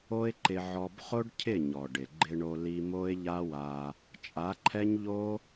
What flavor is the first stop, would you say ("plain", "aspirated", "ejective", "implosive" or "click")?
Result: click